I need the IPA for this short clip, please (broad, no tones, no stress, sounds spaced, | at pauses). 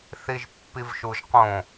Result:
θ i ʒ pː i v ʃ u ʒ q õ